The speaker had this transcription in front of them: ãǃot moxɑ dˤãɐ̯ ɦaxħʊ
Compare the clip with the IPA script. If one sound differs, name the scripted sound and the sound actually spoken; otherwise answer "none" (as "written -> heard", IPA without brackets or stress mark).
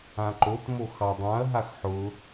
none